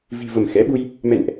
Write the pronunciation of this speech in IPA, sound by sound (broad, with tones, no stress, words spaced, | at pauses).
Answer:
vi̤˨˩və˧˩mxɛ̰˧˥ɓu˧j | mɛ̰˧˨nʔ